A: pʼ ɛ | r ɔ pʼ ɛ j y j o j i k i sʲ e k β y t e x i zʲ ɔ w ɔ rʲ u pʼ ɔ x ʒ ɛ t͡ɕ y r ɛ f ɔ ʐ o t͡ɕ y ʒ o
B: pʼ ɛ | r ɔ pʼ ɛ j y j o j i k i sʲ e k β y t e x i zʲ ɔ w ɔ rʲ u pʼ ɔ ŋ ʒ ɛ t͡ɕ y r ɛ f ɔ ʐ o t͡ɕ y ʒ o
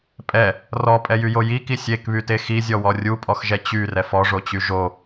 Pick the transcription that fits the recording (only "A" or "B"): A